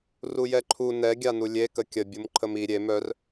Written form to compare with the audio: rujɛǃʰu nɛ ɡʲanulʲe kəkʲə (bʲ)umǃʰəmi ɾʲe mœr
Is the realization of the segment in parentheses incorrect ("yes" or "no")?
no